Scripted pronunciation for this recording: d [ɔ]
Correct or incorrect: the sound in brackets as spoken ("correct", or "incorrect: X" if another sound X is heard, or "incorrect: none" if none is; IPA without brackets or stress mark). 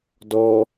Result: correct